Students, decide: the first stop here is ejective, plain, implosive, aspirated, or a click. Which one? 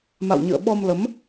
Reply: implosive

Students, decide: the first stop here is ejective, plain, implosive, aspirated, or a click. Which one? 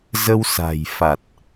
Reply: plain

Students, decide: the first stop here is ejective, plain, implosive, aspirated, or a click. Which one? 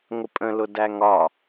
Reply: ejective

